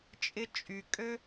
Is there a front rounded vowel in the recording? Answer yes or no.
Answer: yes